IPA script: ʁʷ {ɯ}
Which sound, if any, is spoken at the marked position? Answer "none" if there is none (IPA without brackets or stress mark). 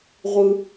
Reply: ɯ